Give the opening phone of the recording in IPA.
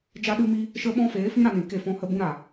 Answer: d͡ʒ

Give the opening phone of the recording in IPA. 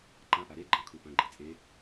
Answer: ǃ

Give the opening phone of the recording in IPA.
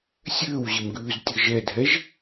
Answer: sʲ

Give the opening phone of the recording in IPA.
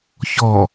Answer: ç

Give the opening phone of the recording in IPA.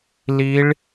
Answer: l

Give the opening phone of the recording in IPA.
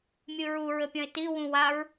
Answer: mʲ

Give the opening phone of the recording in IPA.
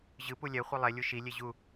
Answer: ʑ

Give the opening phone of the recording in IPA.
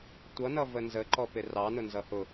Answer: tʷ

